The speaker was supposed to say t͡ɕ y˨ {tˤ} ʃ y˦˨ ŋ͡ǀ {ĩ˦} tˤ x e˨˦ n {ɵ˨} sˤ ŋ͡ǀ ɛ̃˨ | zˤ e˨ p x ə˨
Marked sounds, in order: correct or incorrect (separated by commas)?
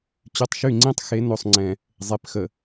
correct, correct, incorrect